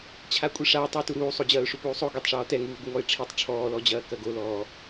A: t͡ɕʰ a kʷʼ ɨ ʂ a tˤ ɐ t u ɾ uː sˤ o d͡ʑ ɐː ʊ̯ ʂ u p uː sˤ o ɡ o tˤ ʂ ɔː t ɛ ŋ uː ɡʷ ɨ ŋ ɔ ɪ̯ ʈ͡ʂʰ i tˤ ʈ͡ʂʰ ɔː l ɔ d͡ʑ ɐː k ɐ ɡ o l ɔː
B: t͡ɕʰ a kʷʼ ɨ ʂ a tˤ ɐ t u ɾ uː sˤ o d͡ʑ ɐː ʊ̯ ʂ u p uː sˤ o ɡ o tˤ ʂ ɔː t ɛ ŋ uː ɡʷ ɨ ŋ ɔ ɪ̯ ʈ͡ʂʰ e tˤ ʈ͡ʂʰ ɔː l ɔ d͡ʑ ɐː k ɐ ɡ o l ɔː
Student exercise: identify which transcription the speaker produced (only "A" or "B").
A